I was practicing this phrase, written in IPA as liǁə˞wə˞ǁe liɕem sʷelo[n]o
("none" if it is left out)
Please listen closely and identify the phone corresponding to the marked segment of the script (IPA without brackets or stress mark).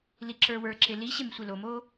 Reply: m